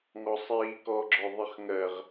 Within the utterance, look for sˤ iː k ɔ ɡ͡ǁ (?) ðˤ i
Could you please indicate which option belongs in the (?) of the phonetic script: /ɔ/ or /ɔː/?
ɔ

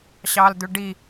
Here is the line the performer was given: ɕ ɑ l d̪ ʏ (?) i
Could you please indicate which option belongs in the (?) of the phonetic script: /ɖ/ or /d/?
ɖ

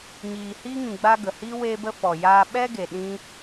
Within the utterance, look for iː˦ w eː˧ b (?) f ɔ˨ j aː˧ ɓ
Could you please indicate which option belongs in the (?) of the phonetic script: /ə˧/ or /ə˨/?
ə˧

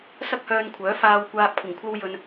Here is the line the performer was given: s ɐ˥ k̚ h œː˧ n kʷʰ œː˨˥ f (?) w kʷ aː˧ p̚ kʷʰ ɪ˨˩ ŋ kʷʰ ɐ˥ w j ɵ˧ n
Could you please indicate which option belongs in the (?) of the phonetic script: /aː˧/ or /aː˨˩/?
aː˧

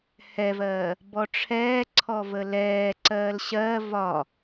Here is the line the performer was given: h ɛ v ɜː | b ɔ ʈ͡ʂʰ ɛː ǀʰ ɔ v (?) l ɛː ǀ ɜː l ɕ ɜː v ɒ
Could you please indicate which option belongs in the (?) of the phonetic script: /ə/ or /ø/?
ə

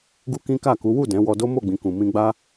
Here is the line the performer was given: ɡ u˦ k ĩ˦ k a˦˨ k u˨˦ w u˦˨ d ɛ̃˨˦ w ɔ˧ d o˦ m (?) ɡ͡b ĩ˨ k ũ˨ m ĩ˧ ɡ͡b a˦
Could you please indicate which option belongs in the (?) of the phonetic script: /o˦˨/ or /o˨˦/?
o˦˨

